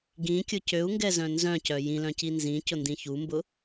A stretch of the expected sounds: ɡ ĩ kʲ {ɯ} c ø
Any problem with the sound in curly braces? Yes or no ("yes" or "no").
yes